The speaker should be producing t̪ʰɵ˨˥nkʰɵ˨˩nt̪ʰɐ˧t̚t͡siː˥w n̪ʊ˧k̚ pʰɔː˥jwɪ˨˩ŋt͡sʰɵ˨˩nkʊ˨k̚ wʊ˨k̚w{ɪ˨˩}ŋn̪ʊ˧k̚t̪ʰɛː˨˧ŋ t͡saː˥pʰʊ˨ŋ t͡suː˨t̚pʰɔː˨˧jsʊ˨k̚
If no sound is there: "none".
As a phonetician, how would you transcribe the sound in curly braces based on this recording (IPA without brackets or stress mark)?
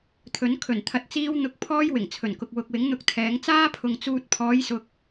ɪ˨˥